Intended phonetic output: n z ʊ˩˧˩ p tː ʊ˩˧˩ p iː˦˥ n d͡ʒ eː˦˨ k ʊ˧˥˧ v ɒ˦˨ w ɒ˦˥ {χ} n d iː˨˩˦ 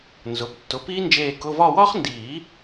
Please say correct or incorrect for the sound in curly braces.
correct